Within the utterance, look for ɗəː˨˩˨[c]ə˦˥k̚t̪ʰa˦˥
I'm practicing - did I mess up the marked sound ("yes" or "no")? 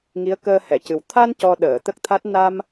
yes